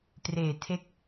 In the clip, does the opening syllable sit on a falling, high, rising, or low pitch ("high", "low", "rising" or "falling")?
low